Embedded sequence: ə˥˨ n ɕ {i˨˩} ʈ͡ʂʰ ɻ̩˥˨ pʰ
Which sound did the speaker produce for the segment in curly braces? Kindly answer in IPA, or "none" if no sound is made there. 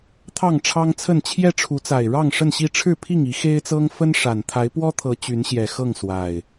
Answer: i˥˨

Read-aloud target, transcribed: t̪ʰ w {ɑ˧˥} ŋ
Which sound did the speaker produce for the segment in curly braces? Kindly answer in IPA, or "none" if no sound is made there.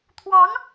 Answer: ɑ˧˥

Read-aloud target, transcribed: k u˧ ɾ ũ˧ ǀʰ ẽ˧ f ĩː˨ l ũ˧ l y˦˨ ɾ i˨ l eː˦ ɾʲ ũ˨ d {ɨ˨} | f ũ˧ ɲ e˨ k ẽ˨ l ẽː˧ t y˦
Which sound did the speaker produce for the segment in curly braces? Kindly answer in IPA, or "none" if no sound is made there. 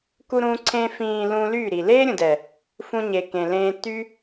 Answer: ɛ˨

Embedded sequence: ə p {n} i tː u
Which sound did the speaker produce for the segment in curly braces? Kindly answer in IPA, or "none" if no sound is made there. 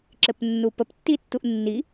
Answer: tː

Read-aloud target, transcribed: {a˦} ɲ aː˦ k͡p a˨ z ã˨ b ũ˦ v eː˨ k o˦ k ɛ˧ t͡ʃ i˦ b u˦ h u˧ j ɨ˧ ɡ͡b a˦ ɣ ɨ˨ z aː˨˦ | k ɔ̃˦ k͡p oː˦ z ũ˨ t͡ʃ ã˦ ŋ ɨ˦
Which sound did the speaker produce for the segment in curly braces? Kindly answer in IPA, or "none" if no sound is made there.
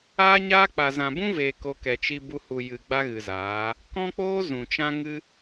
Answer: aː˦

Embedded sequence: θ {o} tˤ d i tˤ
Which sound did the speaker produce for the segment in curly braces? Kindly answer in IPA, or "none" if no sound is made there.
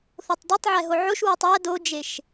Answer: o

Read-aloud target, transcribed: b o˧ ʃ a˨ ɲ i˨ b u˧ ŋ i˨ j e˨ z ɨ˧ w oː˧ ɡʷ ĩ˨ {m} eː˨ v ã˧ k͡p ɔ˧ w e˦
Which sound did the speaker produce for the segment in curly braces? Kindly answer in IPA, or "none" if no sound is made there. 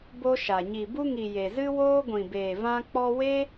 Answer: b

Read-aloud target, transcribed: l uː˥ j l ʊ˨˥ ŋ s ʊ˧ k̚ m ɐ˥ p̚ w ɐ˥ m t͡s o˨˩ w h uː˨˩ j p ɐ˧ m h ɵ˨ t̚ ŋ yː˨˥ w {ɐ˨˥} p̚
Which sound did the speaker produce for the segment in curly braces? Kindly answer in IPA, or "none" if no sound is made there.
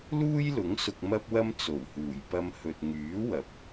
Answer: ɐ˨˥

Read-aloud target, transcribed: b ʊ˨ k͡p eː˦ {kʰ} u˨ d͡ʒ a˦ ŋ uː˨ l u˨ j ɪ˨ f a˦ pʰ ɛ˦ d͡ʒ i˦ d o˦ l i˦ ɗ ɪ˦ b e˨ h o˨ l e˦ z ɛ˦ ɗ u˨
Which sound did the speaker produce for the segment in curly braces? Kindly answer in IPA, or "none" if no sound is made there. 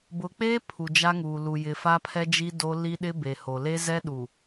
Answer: pʰ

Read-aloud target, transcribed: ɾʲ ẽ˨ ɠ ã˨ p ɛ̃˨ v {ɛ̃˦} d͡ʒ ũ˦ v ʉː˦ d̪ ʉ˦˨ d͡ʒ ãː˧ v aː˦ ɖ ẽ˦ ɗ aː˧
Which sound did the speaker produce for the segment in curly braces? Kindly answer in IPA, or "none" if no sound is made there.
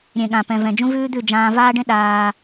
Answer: ɛ̃˨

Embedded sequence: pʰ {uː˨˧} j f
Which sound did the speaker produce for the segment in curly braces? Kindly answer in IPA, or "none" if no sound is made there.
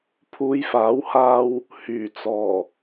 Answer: uː˨˧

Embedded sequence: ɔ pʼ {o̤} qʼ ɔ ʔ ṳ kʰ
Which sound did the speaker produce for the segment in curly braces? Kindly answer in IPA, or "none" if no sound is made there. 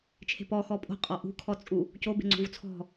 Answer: o̤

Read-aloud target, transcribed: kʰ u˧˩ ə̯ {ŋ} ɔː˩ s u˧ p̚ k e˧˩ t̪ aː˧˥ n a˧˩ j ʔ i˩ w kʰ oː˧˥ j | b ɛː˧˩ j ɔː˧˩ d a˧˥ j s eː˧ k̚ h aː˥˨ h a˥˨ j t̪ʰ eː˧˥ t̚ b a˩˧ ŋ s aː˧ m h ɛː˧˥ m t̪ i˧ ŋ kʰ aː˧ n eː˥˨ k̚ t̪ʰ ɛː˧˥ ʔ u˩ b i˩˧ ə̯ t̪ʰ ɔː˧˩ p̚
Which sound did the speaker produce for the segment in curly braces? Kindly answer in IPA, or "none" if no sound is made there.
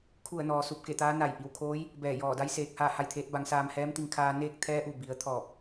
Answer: n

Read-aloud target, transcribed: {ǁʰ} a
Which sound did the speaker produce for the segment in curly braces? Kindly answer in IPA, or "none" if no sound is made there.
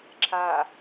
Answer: ǁʰ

